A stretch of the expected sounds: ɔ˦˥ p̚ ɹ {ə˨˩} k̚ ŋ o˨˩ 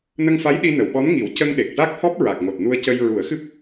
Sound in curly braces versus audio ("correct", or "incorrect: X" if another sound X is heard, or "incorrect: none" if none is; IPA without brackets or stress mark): incorrect: a˨˩